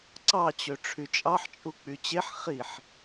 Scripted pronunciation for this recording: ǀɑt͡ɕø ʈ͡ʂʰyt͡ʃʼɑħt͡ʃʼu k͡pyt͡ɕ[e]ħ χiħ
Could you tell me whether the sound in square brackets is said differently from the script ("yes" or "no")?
no